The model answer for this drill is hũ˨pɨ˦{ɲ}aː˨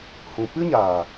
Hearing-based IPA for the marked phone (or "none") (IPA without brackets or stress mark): ɲ